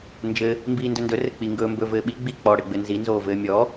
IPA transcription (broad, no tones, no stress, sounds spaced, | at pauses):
n d͡ʒ ɘ | m b iː n d ɵ n d ɵ r ɘ k͡p i ŋ ɡ ɵː m b ɵ v ɘː ɓ i ɡ͡b i k͡p ɔ ɽ ɘ ɡ͡b ɘ n z i n z oː v ɘː mʲ ɔ